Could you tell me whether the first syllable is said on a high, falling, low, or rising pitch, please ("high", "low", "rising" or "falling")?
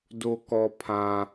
low